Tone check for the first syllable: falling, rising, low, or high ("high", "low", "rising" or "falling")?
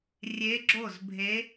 rising